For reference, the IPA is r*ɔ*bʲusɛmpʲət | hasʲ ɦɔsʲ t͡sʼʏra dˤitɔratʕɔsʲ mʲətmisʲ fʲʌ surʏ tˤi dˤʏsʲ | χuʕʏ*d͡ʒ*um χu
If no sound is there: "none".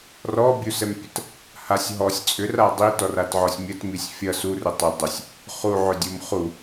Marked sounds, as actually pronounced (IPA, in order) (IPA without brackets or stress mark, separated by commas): ɔ, dʲ